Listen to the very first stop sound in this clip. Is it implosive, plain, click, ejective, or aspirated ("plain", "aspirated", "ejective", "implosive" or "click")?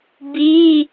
plain